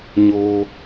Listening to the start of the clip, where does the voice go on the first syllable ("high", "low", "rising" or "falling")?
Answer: low